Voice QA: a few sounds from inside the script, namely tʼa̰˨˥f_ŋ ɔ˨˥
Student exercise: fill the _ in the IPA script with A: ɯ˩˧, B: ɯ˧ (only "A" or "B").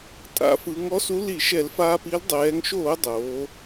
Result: A